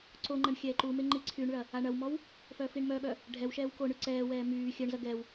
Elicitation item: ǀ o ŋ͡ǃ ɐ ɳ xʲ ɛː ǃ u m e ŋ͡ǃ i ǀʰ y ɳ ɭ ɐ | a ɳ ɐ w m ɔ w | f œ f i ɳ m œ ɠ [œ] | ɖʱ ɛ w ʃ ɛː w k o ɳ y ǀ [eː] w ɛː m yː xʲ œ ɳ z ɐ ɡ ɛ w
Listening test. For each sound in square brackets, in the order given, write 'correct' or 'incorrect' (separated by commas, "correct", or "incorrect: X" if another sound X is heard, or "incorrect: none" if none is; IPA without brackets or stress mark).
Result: correct, incorrect: ɛː